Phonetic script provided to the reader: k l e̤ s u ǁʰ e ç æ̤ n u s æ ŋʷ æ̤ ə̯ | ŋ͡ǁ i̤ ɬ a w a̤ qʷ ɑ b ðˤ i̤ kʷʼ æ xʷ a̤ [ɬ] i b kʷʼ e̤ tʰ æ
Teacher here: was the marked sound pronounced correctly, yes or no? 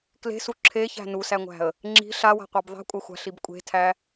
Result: yes